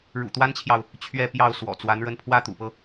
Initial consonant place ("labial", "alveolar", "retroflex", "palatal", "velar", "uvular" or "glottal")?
retroflex